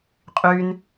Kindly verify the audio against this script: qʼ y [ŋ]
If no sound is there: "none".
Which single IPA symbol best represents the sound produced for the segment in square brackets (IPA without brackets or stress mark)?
n